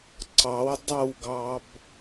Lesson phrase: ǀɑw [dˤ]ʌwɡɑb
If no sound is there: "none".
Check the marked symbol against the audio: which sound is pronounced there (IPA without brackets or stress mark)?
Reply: dˤ